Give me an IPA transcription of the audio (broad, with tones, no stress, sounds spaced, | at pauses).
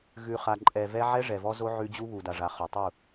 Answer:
ɣ ʉ˨ χ a˨ ǃʼ ɛ˨ v ɛ˦ ʕ ɛ˦ ʐ ɛ˨ v ɔ˦ z o˦ ʕ ʉ˦ d͡ʑ u˦ β u˨ d a˨ ʐ a˨ χ ɔ˨ tˤ u˦˨